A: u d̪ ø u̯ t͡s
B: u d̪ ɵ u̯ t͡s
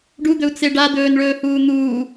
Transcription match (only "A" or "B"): B